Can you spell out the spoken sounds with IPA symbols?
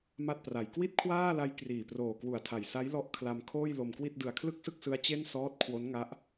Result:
ma˥˩t̚pra˨˩j kwi˥˩t̚kʰwaː˥˩la˦˥j kriː˨˩proː˨˩kwu˨˩a̯tʰa˨˩j sa˦˥jlɔ˦˥ʔ kʰla˧m kʰoː˥˩jlo˧mkwi˥˩t̚ dɯ˨˩a̯kʰlɯ˥˩k̚sɯ˥˩k̚sɯ˦˥a̯ t͡ɕe˥˩n sɔː˦˥t̚kʰwo˦˥nŋa˦˥ʔ

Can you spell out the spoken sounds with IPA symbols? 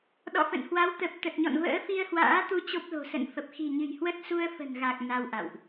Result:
ɗɔ̰˧˨fə̰˧˨nhwa˨˦w t̪ə˨˩p̚ t̪ə˨˩t̚ɲɔ̰˧˨n və̰ː˧˥fi˧ə̯hwa̰ː˧˥t̪u˧ t͡ɕo˦˥p̚lo̤˨˩ sə̰˧˨nfə˨˩p̚ xi̤˨˩ɲɨ̤˨˩jhwə˦˥t̚ su˧ə̯fə̤˨˩nɣa˨˩k̚ na˧wʔa̰˧˨wʔ

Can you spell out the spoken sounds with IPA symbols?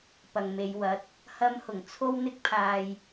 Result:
pɐ˨ŋme˨˧jwɐ˨˥t̚ | hɐ˧mhʊ˨˩ŋ t͡sʰo˥wn̪ɪ˥k̚pʰaː˧j

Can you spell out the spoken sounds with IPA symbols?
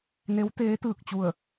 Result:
ne˧˥wt̪eː˧˥t̪ɯː˧˩k̚t͡ɕu˧˩ə̯

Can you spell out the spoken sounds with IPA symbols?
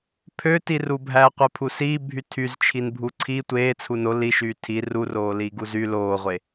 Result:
pʰøtirubʱæː qʷepʰusiː bʱytʰyz t͡ʃʰinbʱuǀʰi tʷeː t͡sʰuno liʃyː tʰi ruroː liːɡuzy loːʁʷe

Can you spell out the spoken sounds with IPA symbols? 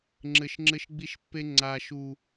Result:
ŋ͡ǁɘ˧ʃŋ͡ǁɘ˦ʃɡ͡bi˦ʃpːe˦ ŋ͡ǀa˨ ʃu˨

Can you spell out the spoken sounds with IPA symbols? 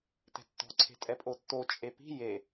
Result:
tɛ̤tːɔ̤ ǀʰe̤tʼɛpʼotːo t͡ʃʼepi̤ je

